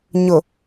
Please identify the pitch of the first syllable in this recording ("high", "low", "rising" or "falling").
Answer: low